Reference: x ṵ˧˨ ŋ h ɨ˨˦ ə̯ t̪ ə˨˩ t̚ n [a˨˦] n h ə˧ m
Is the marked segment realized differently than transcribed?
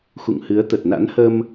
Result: yes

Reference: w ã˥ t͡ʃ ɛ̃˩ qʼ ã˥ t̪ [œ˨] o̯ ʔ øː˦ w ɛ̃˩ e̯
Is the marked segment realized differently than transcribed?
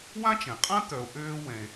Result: no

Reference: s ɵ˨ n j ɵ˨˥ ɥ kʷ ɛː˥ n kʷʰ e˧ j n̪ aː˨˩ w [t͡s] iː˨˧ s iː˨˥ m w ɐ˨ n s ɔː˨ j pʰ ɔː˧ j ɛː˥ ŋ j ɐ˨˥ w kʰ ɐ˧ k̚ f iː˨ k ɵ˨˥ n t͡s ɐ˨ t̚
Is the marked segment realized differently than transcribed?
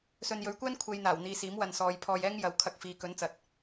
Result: yes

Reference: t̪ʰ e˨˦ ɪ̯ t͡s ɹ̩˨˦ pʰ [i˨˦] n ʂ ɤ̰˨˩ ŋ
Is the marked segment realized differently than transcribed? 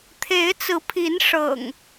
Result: no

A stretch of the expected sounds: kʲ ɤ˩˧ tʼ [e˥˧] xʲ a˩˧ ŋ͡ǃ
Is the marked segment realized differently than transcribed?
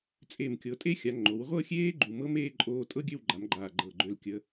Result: yes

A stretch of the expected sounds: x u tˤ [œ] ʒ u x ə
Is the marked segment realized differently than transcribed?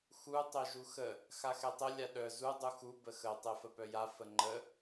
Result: no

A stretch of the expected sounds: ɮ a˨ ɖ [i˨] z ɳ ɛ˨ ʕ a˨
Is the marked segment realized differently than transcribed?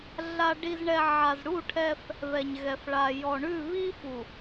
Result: no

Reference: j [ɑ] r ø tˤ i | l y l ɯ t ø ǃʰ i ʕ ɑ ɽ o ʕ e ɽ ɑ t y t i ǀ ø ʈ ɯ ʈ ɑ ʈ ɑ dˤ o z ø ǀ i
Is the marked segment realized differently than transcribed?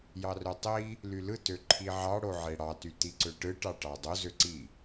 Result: no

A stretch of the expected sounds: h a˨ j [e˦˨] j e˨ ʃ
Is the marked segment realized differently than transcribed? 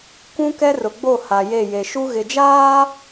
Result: no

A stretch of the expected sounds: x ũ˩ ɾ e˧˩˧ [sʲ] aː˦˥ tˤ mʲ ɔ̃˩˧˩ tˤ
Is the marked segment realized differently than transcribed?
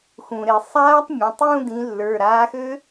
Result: yes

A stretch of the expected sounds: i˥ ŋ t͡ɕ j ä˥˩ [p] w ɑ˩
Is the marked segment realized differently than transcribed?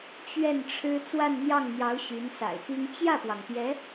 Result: no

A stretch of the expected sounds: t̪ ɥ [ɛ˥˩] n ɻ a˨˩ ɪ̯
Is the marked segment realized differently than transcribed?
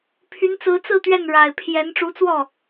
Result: no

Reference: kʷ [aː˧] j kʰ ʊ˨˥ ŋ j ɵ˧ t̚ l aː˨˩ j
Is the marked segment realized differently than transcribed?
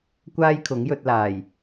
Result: yes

